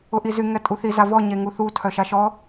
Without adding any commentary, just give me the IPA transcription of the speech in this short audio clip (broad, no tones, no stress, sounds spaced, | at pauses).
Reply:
ʊ ʔ i z y ŋ ɛ tʼ u θ i z a v ɔ ɲ e ŋ u θ u tʰ œ ʃ a ʃ ɔ